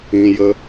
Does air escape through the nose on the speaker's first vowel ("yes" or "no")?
yes